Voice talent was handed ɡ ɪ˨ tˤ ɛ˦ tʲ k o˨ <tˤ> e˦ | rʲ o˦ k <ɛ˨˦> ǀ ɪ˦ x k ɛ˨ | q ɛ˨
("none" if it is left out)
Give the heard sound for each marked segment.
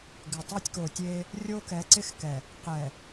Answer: tʲ, ɛ˨˦

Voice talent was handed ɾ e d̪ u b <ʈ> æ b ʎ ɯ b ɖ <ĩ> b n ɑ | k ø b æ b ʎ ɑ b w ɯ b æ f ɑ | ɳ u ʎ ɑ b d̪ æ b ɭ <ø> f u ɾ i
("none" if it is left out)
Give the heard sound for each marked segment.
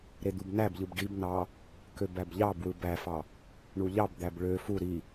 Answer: n, i, ø

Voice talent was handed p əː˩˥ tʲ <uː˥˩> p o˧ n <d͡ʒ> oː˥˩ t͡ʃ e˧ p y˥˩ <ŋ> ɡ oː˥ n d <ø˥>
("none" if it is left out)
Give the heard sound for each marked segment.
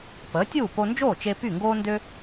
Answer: uː˥˩, d͡ʒ, ŋ, ø˥

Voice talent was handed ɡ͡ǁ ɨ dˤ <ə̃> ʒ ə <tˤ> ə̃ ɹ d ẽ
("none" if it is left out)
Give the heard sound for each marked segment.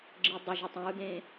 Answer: ə, tˤ

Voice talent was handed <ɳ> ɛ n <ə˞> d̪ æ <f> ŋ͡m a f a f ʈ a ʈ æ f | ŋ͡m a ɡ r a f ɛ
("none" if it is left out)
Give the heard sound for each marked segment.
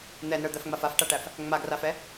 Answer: n̪, ə˞, f

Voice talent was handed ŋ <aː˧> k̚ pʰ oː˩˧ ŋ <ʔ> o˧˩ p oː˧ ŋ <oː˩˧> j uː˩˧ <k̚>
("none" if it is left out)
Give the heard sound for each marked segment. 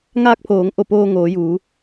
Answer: aː˧, ʔ, oː˩˧, none

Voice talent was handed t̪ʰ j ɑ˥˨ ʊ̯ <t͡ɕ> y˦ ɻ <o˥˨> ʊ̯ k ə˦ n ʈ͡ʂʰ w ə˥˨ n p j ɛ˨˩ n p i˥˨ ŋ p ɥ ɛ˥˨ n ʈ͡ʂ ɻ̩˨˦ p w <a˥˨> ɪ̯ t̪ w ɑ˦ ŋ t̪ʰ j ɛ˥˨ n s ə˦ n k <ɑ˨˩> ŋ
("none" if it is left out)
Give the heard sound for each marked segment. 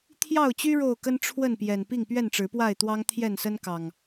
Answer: t͡ɕ, o˥˨, a˥˨, ɑ˨˩

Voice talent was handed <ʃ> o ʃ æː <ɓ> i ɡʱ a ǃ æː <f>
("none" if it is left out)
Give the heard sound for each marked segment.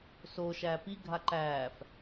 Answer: s, p, f

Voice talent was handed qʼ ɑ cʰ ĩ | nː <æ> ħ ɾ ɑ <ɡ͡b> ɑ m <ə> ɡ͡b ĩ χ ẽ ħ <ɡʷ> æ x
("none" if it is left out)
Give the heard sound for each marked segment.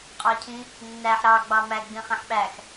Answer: æ, ɡ͡b, æ, ɓ

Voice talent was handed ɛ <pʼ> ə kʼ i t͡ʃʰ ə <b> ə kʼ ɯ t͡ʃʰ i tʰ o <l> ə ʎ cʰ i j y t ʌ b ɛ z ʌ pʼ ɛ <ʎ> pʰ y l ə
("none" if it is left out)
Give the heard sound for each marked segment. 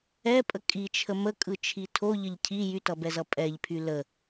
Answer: pʼ, m, ʎ, ʎ

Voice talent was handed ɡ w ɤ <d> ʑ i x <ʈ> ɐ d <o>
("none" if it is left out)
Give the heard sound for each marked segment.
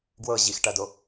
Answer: none, ʈ, o

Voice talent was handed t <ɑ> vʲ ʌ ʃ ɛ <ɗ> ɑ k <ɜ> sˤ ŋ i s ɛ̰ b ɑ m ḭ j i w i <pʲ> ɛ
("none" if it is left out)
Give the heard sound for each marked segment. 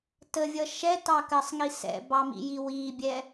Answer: ə, t, ɜ, bʲ

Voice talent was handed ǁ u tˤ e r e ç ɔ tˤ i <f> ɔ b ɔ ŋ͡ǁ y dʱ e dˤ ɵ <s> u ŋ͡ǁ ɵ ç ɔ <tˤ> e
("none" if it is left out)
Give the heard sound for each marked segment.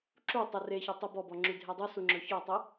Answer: b, s, tˤ

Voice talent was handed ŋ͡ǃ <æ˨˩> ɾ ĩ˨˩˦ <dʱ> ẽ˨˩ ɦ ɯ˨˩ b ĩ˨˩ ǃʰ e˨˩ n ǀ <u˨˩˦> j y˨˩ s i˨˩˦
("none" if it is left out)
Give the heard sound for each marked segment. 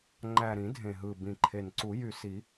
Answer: æ˨˩, dʱ, u˨˩˦

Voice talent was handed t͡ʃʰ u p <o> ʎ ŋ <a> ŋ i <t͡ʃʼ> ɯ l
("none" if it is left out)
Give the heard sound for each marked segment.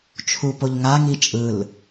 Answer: o, a, t͡ʃʼ

